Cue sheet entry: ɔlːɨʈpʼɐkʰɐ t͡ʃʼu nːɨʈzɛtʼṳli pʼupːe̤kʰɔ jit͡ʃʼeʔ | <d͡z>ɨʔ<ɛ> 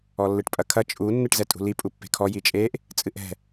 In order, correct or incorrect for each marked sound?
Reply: incorrect: t͡sʼ, incorrect: ɛ̤

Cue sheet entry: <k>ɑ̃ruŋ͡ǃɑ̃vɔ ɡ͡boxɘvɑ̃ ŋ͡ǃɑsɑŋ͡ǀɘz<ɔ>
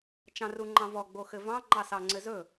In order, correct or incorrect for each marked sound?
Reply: incorrect: t͡ʃ, incorrect: ɵ

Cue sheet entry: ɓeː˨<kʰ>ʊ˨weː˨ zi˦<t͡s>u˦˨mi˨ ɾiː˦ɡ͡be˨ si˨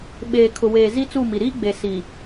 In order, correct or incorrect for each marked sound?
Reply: correct, correct

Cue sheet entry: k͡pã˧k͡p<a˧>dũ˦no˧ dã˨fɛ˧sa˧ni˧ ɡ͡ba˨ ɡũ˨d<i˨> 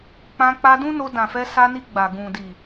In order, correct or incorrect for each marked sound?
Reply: correct, correct

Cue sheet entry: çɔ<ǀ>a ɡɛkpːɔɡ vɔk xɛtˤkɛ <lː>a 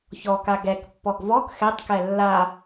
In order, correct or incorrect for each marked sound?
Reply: incorrect: k, correct

